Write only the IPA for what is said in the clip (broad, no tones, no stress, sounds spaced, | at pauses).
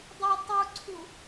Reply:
dˤ i tˤ u ǀʰ u